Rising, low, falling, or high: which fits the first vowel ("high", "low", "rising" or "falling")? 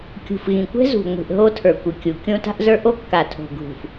low